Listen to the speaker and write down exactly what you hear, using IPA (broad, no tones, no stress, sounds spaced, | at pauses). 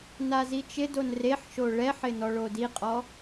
n a z i t͡ʃ ɪ d o n r e ħ ʃ o ɭ ɛ ħ ɪ n ɔ ɭ o d i qʼ ɔ